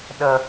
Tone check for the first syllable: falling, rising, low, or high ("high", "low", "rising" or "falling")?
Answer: low